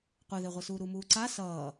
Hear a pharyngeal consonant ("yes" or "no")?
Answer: no